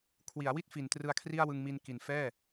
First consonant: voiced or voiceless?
voiceless